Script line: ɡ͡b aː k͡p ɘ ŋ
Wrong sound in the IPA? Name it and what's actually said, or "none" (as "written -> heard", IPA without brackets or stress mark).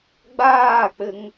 none